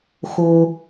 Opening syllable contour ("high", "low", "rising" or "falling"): low